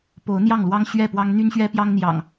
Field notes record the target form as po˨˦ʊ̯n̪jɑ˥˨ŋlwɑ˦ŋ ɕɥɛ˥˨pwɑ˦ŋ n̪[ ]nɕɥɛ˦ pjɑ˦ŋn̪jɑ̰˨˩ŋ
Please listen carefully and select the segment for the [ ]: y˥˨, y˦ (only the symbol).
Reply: y˦